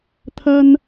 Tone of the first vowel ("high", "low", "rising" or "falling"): high